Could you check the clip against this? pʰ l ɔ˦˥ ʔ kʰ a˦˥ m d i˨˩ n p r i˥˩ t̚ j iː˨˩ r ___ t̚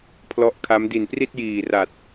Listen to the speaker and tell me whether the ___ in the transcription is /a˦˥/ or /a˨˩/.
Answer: a˨˩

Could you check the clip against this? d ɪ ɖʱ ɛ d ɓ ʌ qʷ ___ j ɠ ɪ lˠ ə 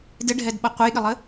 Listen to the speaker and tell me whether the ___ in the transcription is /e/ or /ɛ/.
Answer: ɛ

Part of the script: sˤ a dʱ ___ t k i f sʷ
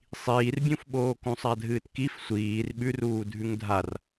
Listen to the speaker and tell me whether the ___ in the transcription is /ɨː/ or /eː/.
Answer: ɨː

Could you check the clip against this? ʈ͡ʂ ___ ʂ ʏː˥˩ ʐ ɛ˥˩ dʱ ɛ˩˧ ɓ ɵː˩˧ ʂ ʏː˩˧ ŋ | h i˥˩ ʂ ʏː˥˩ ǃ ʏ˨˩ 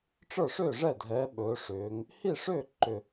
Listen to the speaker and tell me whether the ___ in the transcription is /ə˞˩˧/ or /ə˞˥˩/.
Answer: ə˞˥˩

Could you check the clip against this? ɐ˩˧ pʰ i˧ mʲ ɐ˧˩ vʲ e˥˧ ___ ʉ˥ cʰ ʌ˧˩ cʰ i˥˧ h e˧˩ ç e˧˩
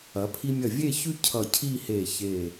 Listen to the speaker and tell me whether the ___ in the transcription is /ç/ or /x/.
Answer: ç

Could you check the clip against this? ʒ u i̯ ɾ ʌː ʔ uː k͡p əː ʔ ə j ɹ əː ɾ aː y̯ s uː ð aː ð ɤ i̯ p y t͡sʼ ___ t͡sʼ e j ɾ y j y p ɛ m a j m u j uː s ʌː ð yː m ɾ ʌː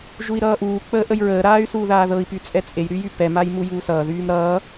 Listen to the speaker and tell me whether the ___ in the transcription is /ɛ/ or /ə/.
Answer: ɛ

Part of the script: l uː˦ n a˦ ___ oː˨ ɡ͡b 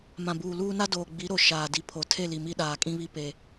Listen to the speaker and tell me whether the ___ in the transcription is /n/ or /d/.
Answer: d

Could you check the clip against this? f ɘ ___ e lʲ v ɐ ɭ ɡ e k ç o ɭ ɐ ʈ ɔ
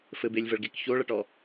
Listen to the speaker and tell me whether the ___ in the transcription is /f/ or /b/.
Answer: b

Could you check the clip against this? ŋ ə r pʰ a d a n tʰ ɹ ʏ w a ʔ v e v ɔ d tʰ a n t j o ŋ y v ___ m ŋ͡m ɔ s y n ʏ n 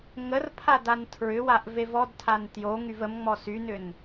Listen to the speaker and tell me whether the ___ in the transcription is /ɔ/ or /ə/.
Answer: ə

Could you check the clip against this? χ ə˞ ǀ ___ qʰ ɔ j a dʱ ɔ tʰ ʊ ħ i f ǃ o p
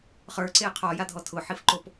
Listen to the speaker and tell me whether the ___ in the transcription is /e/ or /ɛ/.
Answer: e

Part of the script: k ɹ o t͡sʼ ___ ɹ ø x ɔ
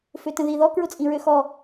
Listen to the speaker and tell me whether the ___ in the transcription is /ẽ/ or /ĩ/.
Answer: ĩ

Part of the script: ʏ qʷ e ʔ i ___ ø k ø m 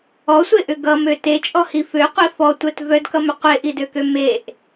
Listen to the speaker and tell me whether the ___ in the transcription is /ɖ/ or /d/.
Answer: d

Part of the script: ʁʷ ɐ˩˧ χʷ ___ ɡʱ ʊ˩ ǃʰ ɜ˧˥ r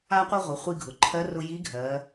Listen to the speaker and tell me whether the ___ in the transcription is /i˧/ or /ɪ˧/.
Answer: i˧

